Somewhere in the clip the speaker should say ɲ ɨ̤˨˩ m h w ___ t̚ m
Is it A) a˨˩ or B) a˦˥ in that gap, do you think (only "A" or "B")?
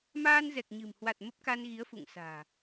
A